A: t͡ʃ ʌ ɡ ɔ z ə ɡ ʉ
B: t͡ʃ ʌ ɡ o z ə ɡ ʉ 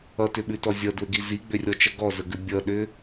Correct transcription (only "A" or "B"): A